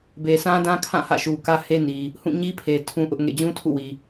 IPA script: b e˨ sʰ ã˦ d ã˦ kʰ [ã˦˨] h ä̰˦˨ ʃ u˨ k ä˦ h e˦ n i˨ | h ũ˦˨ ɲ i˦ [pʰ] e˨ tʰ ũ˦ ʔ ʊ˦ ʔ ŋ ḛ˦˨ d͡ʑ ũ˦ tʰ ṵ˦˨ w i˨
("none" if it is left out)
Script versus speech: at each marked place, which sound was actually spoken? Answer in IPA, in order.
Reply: ã˦˨, pʰ

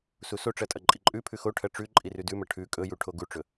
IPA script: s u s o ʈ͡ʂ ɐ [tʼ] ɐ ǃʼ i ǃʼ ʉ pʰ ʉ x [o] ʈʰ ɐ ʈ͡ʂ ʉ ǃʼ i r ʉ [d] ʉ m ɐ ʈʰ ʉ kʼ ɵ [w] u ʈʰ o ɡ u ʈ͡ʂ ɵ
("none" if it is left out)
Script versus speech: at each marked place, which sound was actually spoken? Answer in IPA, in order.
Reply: tʼ, o, d, j

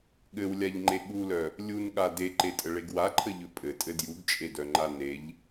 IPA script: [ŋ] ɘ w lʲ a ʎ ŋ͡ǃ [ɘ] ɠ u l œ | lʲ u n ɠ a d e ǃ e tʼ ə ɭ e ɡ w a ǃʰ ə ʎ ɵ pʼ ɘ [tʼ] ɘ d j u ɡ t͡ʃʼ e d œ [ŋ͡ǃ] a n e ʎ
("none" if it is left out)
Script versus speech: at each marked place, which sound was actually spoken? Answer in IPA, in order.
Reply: ɠ, e, tʼ, ŋ͡ǃ

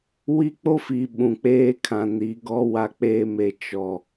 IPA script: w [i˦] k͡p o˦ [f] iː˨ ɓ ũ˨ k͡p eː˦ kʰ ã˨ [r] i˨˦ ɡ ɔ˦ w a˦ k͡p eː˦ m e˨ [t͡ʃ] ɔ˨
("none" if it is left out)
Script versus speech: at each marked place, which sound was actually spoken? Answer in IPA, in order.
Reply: i˦, f, n, t͡ʃ

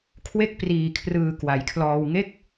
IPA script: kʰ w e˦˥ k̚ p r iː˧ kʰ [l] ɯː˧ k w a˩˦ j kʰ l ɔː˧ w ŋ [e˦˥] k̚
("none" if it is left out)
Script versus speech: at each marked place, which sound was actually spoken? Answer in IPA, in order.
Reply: r, e˥˩

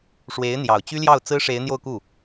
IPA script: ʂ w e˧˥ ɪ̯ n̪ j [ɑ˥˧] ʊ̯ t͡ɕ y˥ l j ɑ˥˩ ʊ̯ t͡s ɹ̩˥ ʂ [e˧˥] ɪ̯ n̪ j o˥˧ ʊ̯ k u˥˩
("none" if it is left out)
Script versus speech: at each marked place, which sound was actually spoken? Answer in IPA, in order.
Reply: ɑ˨˩, e˧˥

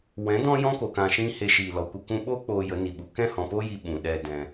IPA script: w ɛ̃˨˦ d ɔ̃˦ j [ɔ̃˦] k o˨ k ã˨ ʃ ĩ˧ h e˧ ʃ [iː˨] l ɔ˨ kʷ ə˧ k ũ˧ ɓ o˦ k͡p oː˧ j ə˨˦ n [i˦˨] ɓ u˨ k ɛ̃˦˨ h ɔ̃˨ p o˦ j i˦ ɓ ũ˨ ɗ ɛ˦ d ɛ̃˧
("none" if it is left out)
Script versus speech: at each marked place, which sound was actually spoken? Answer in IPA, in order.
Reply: ɔ̃˦, iː˨, i˨

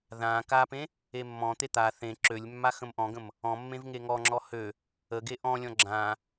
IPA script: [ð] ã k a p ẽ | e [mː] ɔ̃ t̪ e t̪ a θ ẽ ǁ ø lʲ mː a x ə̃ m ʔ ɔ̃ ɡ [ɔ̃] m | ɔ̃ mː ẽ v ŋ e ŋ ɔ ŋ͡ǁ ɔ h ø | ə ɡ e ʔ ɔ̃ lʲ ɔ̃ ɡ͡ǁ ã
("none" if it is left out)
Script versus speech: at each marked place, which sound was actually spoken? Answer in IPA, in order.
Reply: ð, mː, ə̃

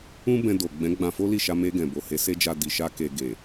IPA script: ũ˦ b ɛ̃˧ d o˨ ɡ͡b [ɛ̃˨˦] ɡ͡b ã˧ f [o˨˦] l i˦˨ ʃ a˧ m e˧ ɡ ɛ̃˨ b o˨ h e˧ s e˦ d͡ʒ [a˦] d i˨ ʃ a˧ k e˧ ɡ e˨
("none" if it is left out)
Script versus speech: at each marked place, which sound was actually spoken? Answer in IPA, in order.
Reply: ɛ̃˨˦, o˦, a˧

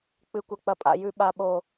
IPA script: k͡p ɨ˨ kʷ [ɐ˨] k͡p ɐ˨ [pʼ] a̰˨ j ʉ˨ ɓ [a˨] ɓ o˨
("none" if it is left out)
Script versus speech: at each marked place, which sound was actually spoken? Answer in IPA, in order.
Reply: ɐ˨, pʼ, a˨

